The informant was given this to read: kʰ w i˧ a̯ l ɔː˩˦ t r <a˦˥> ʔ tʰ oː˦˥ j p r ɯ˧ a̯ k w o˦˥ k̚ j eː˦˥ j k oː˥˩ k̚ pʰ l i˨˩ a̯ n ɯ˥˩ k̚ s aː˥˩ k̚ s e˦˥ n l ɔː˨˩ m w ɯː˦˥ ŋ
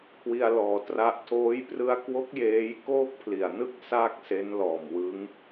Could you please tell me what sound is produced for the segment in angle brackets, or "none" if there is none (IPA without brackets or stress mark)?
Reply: a˦˥